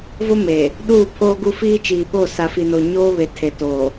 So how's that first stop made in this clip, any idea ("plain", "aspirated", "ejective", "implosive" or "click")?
implosive